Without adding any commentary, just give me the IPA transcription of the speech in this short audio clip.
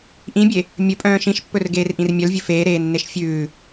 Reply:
ʔ ĩ bʲ e | mʲ ɵ pʼ œ̃ː ʃ ĩ ʃ pː ɵ r ɡ eː r ʔ ĩ r mʲ œ l vʲ ɵ f eː ɾ eː nː e ʃ fʲ ʉː

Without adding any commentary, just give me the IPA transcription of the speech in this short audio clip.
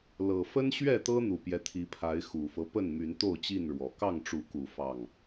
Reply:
l ɤ˨˩ f ə˦ n ɕ ɥ ɛ˥˨ t̪ ɤ˦ n̪ u˨˩ p j ɛ˦ t̪ʰ i˨˦ pʰ a˨˦ ɪ̯ x u˨˩ f ɤ˦ p ə˥˨ n m y˨˦ n t̪ o˥˨ ʊ̯ t͡ɕ i˥˨ n ɻ w ɔ˨˦ k ɑ˥˨ ŋ ʈ͡ʂ u˨˦ k u˨˩ f ɑ˥˨ ŋ

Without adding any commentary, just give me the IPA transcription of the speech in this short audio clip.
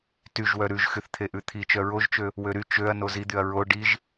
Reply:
t y ʒ w œ ɾ ʉ ʒ x y θ t̪ʰ e ʔ ʉ t̪ʰ i t͡ʃ œ ɹ o ʒ t͡ʃ ø | w ø ɾ y t͡ʃ ø ɐ̯ n o z i d̪ y ɐ̯ ɹ o ɖ i ʒ

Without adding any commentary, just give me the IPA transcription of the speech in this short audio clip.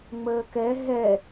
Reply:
ŋ͡m əː k ɛ ɦ ɛ

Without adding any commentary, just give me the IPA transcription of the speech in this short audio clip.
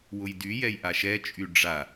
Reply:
w ʊ j d y j ɛ j ʔ a ʃ ɛ t͡ʃʼ y ɖ͡ʐ a

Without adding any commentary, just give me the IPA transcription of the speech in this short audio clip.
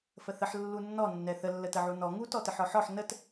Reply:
f ə θ ə ħ lː u nː ɔ nː ɛ θ ə lː ə t ə ʕ u n ɔ ŋ u t ɔ t ə ħ ɔ ħ ɔ ħ n ə t

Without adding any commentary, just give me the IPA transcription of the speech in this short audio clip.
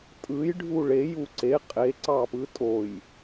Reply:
tʼ ɯ j ɖʱ u ɭ e j u ǀ e qʼ e ǀ ɑ p ɯ tʼ o j

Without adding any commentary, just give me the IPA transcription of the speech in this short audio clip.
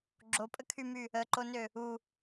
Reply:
ɡ͡ǁ o pʼ ə kʰ y m y | ə ǃ o n ø | u

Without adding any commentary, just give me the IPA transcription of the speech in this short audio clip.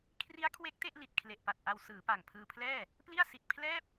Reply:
kʰ r i˦˥ a̯ kʰ w e˦˥ k̚ t e˥˩ ʔ l i˨˩ t̚ kʰ l e˨˩ ʔ p a˨˩ t̚ ʔ a˧ w s ɯː˩˦ p a˨˩ ŋ pʰ ɯː˧ pʰ l ɛː˥˩ | p l i˥˩ a̯ s i˨˩ t̚ pʰ l ɛː˥˩ p̚

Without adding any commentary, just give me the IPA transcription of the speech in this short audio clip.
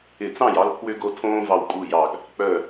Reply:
ɪ˧˩ t͡s ɑ̃˥˩ j ɑ˦ l pʰ w ʏ˦ ɡ o˦ tʰ õː˦ v ɑ˧˩ w kʼ u˧˩ j ɑ˧˩ ɡ | k͡p œ˧˩

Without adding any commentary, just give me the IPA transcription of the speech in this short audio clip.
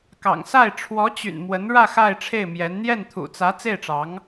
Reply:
k ɑ̰˨˩ ŋ s a˥˩ ɪ̯ ʈ͡ʂʰ w ɔ˧˥ t͡ɕ y̰˨˩ n m w ə˧˥ n ɻ ä˥˧ x a˥˧ ɪ̯ ʈ͡ʂʰ e˥˩ ɪ̯ m j ɛ˧˥ n n̪ j ɛ˥˩ n t̪ʰ ṵ˨˩ t͡s ä˧˥ t͡s e˥˩ ɪ̯ ʈ͡ʂ ɑ˧˥ ŋ

